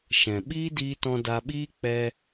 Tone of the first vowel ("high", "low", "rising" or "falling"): low